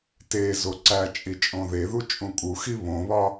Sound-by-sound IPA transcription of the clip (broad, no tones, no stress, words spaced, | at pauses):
tezo ǀæt͡ʃʼi t͡ʃʼõðeðu t͡ʃʼũkʼuxi βõβɒ